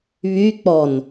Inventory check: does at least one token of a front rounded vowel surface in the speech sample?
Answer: yes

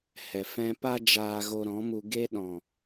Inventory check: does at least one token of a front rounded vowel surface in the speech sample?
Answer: no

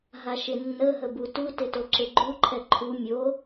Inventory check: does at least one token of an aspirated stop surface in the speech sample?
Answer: yes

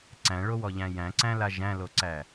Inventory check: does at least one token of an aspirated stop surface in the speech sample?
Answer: no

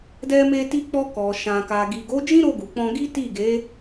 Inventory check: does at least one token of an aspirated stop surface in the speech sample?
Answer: no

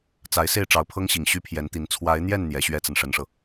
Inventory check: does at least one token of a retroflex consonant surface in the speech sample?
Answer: yes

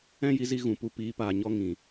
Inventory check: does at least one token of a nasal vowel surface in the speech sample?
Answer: yes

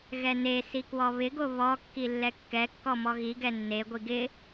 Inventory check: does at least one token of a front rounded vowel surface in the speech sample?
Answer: no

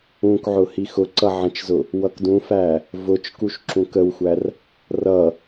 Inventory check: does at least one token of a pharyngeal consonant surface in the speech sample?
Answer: yes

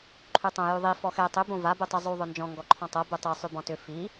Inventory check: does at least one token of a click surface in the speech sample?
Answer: yes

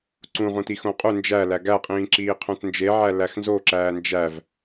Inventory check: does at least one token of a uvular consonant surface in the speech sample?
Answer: yes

